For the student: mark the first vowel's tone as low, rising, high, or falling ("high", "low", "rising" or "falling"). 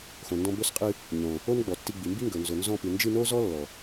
low